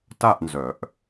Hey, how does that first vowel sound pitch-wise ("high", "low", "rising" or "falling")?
falling